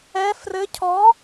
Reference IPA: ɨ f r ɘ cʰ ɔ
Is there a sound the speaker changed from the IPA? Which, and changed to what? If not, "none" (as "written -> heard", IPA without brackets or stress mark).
ɨ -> ɛ